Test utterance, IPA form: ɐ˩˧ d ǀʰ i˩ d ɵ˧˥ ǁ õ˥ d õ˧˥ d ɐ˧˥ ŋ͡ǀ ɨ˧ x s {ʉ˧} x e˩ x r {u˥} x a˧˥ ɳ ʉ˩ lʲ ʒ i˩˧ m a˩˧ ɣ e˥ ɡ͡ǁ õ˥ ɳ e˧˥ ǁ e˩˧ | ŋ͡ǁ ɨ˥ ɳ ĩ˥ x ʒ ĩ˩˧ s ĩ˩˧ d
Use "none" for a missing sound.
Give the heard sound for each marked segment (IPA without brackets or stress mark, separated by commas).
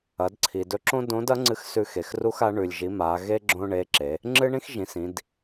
ʉ˧, u˥